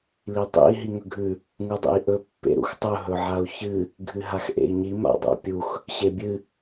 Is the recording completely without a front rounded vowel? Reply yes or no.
yes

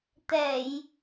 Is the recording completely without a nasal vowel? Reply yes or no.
yes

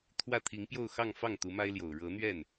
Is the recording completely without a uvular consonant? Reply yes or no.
yes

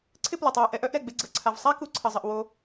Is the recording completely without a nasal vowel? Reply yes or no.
yes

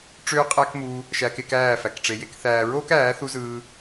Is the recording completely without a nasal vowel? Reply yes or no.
yes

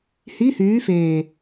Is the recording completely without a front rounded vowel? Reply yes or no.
no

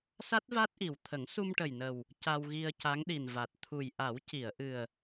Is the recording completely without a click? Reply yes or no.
yes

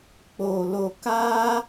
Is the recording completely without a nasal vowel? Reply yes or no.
yes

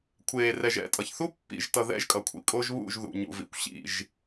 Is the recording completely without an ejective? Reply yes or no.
no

